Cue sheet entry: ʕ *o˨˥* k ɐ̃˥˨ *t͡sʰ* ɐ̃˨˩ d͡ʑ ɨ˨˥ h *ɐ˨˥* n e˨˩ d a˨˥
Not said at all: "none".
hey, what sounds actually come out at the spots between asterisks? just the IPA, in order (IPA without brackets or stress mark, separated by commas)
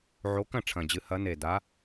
o˨˥, ʈ͡ʂʰ, ɐ˨˥